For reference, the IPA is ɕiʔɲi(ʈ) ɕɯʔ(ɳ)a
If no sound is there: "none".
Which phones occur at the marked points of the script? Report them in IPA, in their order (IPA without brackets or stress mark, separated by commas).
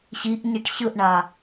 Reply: ʈ, ɳ